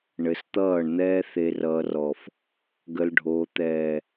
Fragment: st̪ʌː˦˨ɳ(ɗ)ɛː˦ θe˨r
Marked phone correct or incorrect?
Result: incorrect